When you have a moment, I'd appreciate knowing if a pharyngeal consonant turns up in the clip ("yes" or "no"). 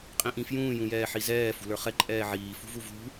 yes